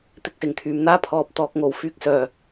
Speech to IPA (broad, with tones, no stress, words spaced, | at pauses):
t̪ɪ˧k̚sɪ˨˩ŋt̪ʰyː˨mn̪aː˥ pʰɔː˨p̚t̪ɔː˨k̚ ŋo˨˩wfyː˧k̚ sœː˨˩